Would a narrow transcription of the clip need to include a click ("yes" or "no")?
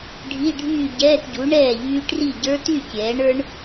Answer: no